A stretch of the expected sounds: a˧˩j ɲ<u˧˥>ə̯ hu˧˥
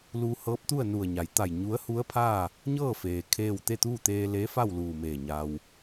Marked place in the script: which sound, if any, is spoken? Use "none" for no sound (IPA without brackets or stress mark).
u˧˥